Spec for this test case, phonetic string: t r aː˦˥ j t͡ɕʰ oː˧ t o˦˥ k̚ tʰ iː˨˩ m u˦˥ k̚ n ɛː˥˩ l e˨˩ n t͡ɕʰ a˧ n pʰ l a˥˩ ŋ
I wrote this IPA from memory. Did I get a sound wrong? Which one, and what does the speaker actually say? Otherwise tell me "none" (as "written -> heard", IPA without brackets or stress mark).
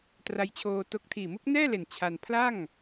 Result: aː˦˥ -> a˦˥